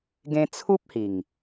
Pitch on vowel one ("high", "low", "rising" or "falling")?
high